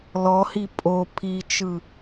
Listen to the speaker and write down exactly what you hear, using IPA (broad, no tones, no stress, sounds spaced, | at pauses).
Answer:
l ɔ h i pʼ o pʰ i t͡ʃ ɯ